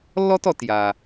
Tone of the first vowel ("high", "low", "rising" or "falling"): high